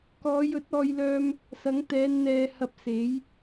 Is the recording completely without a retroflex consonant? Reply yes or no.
yes